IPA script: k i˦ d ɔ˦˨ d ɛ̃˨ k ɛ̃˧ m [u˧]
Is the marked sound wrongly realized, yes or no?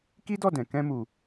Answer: yes